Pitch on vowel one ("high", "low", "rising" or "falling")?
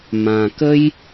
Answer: low